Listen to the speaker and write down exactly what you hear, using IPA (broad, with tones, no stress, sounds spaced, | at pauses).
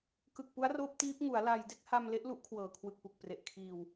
k ɯ˨˩ k̚ p u˦˥ a̯ r oː˦˥ p̚ t iː˦˥ p̚ ŋ u˩˦ a̯ l a˧ j d e˥˩ k̚ h a˧ m l e˦˥ ʔ l u˦˥ ʔ kʰ w ɤː˨˩ kʰ w ɯ˨˩ k̚ p u˨˩ k̚ p r e˨˩ ʔ kʰ iː˧ w